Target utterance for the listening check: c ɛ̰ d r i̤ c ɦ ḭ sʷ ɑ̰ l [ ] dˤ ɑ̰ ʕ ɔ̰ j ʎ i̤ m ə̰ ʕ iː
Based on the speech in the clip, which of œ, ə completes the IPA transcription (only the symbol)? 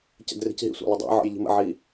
ə